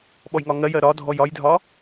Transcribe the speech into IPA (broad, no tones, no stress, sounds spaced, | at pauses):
ɓ ɔ j ŋ ɒ ŋ ɜ j ɜ ɾ ɒ dʱ ɔ j ɒ j dʱ ɒ